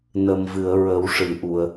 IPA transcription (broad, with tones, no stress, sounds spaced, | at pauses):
n ə˨˩ m v ɨ˨˩˨ ə̯ ɹ ə˨˩˦ w ʂ ɨ˨˩˨ ʔ u˨˩˨ ə̯